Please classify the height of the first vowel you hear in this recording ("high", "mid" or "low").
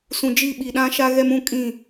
high